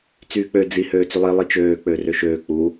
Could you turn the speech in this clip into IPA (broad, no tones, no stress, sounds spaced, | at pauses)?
t͡s yː k͡p ø d͡z i h øː t͡s y lˠ i lˠ i t͡ʃ øː k͡p ø r ø ʃ øː k͡p u